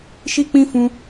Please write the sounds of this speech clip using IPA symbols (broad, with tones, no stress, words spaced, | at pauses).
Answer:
ʃi˦k͡pĩ˦ fũ˦